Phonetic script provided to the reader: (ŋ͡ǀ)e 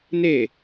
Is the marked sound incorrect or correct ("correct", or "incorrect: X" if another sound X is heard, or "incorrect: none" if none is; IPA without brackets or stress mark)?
incorrect: n